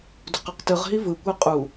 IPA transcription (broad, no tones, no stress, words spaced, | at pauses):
do̤qɤqtɯʁɦi vɯkʷɛ qʼu